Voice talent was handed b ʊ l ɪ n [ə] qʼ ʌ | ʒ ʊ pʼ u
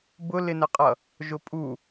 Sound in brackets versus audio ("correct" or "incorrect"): correct